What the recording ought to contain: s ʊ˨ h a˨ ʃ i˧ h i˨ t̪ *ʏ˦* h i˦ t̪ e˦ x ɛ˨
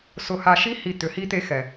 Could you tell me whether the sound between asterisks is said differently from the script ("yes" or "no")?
yes